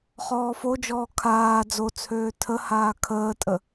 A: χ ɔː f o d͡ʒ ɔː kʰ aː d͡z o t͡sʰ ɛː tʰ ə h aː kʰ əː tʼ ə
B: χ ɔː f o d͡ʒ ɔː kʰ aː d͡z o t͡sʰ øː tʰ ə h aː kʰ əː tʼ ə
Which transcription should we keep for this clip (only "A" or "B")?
B